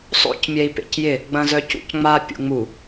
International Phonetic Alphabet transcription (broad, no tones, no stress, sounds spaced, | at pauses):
sˤ o̰ c mʲ ɛ i̯ p ḛ c j ɪ | ɡ͡b ɐ̃ z œ c ṵ c ŋ͡m a pʲ ṵ ŋ͡m u